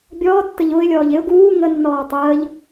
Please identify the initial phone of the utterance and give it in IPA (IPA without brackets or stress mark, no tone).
bʲ